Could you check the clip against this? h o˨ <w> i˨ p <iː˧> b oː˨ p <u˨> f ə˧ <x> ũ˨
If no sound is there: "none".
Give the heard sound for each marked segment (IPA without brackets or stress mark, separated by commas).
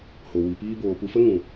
w, iː˧, u˨, ŋ